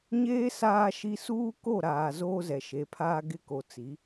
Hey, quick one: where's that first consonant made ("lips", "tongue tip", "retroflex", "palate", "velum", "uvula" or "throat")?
palate